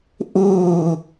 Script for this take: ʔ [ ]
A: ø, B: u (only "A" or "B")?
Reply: B